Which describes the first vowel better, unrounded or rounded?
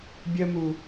unrounded